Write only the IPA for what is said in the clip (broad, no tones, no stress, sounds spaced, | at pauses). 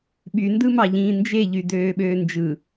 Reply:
ɓ y n d ɯ m ɑ ʎ ĩː n d͡ʒ e ʎ y d øː ɓ øː n d͡ʒ ɯ